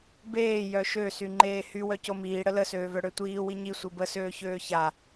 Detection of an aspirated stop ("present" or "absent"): absent